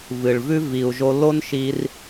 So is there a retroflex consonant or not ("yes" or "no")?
yes